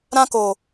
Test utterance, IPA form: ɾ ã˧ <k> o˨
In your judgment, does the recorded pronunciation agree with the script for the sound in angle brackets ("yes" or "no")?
yes